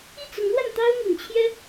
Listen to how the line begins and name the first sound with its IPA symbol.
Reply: i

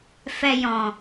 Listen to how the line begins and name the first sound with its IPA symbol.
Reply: f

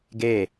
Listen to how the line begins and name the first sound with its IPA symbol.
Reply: ɡ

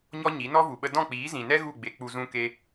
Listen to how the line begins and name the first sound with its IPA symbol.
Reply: ɲ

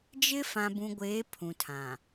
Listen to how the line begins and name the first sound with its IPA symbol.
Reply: d͡ʒ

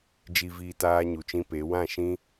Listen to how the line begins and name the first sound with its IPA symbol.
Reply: d͡ʒ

